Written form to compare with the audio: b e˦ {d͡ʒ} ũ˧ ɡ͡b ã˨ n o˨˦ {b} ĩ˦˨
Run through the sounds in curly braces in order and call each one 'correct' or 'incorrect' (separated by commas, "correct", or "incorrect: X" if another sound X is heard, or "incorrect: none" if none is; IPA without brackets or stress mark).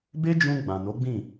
correct, incorrect: ɡ͡b